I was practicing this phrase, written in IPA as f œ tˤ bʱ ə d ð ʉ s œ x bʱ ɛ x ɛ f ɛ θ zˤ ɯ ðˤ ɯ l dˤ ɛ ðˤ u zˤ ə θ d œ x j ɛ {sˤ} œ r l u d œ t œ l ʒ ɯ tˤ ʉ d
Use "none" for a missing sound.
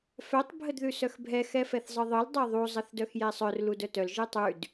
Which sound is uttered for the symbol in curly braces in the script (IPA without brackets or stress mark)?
sˤ